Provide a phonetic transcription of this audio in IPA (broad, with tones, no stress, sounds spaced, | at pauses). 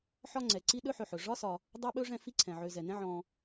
ħ ɒ˦ ŋ͡ǀ ɛ˩ ǀ i˦ ɗ ɵ˥ ħ ɵ˨ ħ ɵ˩ ʐ ɒ˥ s ɒ˨ | dˤ ɛ˥ ɓ ɵ˥ ʐ ɛ̃˦ f i˦ ǀʰ ɛ̃˩ ʕ ø˨ z ɛ˩ n ɛ̃˥ ʕ ɔ̃˨